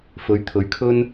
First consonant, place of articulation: labial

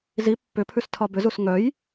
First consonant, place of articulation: alveolar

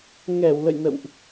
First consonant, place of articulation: velar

